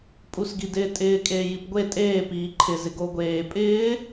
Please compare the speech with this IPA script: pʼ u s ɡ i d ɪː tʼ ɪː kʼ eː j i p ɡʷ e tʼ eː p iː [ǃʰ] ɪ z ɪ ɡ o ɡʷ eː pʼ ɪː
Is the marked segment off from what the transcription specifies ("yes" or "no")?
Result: no